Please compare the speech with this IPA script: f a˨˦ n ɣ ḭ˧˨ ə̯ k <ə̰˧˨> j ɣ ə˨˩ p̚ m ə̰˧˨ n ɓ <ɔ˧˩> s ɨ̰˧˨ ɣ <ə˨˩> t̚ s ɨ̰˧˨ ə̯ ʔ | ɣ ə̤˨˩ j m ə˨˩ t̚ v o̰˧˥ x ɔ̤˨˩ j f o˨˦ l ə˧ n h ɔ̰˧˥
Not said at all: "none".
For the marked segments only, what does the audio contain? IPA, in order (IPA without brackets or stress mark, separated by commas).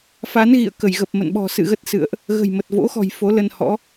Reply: ə˧˩, ɔ̤˨˩, ə˦˥